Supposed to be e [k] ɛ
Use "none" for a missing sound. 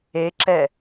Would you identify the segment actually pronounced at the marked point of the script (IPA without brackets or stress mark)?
ǁ